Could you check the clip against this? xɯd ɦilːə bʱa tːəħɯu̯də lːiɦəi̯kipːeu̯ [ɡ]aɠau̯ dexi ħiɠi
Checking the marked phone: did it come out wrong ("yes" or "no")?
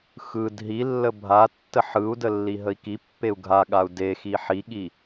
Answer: yes